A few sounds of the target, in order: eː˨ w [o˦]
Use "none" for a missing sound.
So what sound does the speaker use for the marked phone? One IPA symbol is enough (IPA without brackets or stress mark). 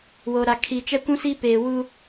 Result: u˦